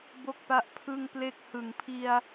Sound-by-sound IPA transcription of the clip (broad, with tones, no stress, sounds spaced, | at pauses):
b o˥˩ k̚ p a˦˥ ʔ pʰ ɯ˥˩ ŋ p l e˥˩ k̚ h ɯ˨˩ ŋ pʰ i˧ a̯